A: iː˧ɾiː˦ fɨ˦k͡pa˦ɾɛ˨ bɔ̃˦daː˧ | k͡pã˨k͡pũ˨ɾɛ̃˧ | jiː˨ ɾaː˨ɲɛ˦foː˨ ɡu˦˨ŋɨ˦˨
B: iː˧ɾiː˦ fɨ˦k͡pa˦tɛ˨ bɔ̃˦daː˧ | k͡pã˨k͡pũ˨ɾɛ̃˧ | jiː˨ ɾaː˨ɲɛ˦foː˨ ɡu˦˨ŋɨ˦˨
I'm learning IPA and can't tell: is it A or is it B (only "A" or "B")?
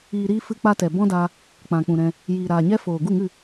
B